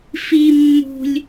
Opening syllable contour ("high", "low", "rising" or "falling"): low